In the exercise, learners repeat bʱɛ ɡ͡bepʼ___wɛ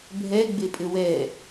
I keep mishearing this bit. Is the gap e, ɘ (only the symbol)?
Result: ɘ